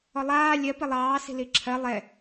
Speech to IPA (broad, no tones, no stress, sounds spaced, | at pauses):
ɔ lˠ aː lʲ ɜ p i lˠ ɑː s i̤ l i ǁʰ ɜ lˠ ɛ